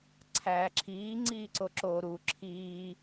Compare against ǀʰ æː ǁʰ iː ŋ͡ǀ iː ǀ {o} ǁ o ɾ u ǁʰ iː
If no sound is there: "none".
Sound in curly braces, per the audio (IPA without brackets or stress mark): o